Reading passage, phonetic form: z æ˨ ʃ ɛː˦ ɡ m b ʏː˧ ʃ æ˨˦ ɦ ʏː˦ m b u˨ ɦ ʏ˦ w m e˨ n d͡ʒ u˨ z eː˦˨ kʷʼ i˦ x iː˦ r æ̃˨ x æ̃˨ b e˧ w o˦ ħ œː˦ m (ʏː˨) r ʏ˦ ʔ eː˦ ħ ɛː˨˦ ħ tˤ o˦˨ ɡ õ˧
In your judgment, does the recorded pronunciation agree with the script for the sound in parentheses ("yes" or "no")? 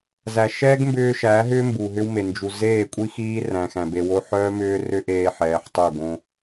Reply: no